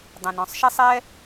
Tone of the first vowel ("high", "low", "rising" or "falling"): low